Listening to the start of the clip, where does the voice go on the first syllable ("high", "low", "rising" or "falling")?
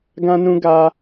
high